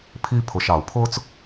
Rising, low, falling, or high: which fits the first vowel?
high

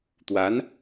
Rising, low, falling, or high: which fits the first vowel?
rising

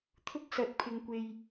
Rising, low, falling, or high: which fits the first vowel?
high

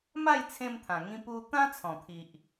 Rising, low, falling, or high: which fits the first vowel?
falling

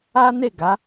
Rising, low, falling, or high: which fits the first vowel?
high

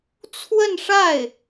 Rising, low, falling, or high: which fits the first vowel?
falling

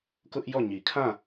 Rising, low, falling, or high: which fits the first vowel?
high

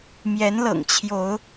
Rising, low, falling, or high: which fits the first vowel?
rising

